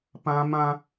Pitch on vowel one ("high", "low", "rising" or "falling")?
high